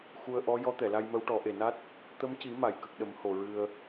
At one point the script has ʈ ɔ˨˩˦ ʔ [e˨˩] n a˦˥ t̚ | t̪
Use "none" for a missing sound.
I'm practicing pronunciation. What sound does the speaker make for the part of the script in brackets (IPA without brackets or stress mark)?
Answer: e˨˩